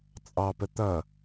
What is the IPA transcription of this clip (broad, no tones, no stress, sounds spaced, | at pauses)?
t͡sʼ ɑ p ə t̪ ʌ